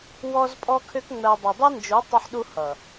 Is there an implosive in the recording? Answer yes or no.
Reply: yes